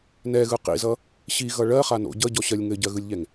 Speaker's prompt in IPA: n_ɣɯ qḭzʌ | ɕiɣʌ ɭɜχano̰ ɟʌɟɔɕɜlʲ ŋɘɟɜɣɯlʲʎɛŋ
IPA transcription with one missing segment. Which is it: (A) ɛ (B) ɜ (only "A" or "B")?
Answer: A